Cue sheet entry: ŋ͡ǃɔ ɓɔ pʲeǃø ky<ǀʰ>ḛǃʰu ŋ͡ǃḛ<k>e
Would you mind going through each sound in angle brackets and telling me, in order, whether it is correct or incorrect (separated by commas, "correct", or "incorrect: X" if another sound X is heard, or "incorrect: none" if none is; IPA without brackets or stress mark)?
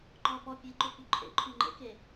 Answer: incorrect: ǃʰ, correct